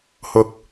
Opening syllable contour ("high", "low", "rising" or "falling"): low